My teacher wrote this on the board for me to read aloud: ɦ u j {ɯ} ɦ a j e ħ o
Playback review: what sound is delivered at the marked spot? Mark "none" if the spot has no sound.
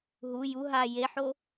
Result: u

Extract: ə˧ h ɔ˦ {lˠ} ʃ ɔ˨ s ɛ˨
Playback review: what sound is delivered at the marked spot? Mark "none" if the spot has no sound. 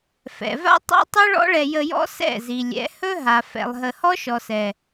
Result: none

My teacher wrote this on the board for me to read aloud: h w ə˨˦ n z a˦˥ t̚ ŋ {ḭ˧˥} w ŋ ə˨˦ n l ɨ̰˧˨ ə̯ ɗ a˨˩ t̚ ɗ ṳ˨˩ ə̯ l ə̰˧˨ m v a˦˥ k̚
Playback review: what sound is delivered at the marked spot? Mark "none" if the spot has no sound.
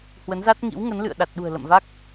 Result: ḭ˧˥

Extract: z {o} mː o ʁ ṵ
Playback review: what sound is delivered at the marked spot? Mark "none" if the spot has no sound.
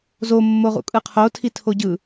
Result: o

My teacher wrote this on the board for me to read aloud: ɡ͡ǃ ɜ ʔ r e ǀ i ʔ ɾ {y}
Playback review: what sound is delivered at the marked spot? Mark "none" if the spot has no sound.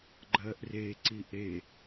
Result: e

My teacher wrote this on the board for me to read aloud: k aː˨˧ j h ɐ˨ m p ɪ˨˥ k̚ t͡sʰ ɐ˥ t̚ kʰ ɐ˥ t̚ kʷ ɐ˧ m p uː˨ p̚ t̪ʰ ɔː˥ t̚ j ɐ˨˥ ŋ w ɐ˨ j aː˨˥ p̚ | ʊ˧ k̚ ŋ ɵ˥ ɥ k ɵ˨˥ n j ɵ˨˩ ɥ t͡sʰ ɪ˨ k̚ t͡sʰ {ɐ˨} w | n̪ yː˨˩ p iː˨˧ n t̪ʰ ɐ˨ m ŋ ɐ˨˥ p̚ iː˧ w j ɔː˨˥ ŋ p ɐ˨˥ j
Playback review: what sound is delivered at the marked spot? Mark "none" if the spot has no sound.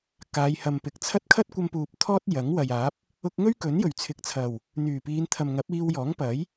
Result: ɐ˨˩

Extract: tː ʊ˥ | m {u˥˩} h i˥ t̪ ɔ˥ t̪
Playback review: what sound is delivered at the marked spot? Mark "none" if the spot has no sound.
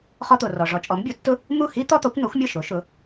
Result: u˥˩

